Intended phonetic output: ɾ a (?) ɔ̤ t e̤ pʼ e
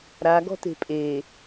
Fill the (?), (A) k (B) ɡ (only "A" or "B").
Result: B